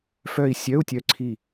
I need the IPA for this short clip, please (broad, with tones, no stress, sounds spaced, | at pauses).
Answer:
f œ˦˨ i̯ sʲ œ˧˥˧ u̯ tʲ œ˦˨ ǀʰ i˦˨